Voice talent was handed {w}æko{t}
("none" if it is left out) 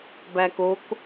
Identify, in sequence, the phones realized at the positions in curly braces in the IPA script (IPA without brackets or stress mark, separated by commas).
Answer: b, k